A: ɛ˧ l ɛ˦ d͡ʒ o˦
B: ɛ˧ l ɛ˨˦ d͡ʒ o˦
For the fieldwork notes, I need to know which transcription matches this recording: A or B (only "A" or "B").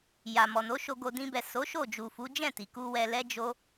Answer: A